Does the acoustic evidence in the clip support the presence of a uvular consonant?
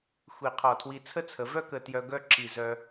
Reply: yes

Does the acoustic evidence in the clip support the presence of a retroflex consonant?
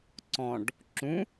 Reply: yes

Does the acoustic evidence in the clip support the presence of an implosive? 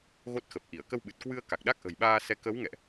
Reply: yes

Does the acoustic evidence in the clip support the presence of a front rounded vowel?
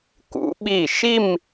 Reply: no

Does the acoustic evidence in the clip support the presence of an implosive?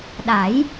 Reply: yes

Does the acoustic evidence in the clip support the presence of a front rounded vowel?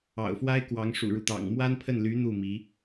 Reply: yes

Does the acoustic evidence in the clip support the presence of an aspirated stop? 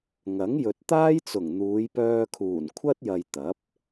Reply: yes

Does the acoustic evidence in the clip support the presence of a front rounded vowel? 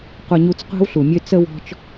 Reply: yes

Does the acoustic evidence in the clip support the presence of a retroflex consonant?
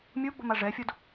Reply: yes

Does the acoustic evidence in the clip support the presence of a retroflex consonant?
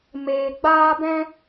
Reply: no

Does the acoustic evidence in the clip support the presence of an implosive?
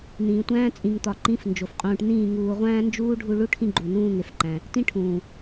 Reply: no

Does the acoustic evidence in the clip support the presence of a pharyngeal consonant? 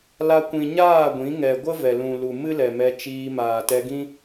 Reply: no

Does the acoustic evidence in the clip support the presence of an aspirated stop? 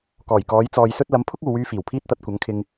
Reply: yes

